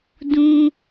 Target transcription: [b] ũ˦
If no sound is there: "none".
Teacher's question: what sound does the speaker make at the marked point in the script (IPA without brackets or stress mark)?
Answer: d